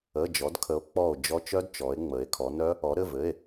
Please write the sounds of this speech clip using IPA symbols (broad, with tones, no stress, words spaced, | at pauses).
ə˩˧˩d͡ʒɔ˩˧d kʰə˩˧o̯k͡pɔ˧˩o̯d͡ʒɔ˧ t͡ʃœ˦˥dt͡ʃɔ˩˧e̯ŋ͡mə˩˧e̯ kʰɔ˩˧nœ˦˥ | ɔ˩˧ɾɘ˩˧˩vɘ˩˧˩e̯